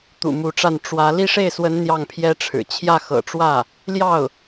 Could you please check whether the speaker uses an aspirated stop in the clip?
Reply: yes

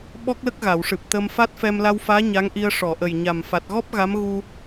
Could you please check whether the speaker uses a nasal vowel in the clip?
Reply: no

